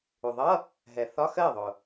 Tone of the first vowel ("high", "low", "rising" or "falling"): low